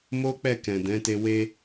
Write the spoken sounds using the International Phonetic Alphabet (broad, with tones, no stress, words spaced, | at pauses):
mo˦ k͡pɛ˦˨ kɛ̃˨dɛ̃˨˦te˧ we˧